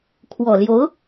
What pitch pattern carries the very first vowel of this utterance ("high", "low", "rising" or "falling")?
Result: low